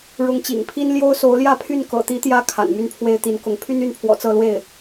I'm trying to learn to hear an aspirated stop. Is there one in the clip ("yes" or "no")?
yes